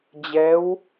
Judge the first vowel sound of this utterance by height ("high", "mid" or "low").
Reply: mid